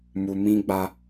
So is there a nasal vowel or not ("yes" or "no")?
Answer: yes